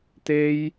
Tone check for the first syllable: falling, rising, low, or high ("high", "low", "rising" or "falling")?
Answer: high